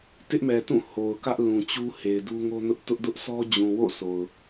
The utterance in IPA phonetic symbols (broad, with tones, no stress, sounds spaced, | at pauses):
t ɪ˦ ʔ m ɛ˨ t ũ˦˨ h o˨ ʊ̯ k ä˦ ʔ l ũ˨ t͡ɕ u˦ h e˨ ɪ̯ d u˦ ŋ o˦ n ʊ˦ ʔ t ʊ˦ ʔ d ʊ˦ ʔ s ɔ˦ d͡ʑ ũ˨ w o̰˦˨ sʰ o˨ ʊ̯